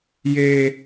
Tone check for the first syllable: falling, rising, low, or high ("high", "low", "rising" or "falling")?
high